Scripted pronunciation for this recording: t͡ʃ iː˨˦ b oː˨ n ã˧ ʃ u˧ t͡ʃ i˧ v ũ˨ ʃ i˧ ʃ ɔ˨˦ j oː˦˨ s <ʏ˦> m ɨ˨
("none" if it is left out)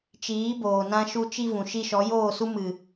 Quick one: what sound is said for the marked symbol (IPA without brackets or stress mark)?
u˦